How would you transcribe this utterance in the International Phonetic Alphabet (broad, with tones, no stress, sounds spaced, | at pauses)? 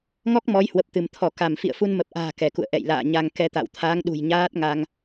ŋ ɔ˦˥ k̚ m ɔ˨˦ j h w ə˨˩ p̚ t̪ ɨ˧˩ m t̪ʰ ɔ˧˩ k a˧˩ m f ḭ˧˨ ə̯ f u˧ n m ə˨˩ p̚ ʔ a̤ː˨˩ k ɛ˧˩ k ṵ˧˨ ə̯ ʔ ɛ̰˧˨ j l a̰ː˧˨ ɲ a˧ ŋ k ɛ˧ t̪ a̰˧˨ w t̪ʰ aː˨˦ ŋ ɗ ṳ˨˩ j ɲ aː˦˥ t̚ ŋ a˧ ŋ